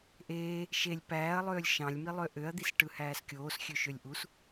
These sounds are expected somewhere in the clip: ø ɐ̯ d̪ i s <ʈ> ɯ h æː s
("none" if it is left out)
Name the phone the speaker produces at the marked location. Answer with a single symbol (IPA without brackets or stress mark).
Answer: ʈ